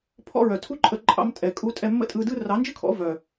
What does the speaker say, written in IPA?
pʰɔ̰˧ɹœ˨tʰu˦ ǃʼə˧ǃʼɑ̰˧m tʼɛ˨kʼu˧tʼɛ˧ mːə̰˦tʼɯ˧dɯ˦ rɑ˨˦nd͡ʒɯ˦kʰɔ̰˨˦ vœ˨

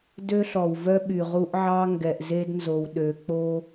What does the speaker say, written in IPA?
dø˦ɬɔ˨wvœ˦ ɓy˨ʁu˦ʔʕɑ˦ ŋɡɛ˨ʔze˦dnzo˨w ɗø˨k͡po˦

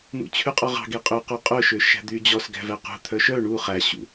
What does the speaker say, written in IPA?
n̪ṵt͡ɕʰʉqʼɔʁɑ̤ ɡeqʼø qʉqʼœʃøʃæ̤ d̪yːd͡ʑɔs ɡæ̤væqṳ t̪ʰœʃœ ɳu χæɕṵ

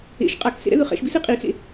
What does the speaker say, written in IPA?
ḛʃ qʼaksḛɾɛ̰ðɯ χɛ̰ʃbisi qʼixḛ

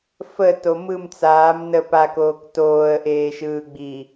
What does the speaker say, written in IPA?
fə tomɯm t͡saːm nə pakoːk toːə̯ʔeːʃɯːɡ͡bi

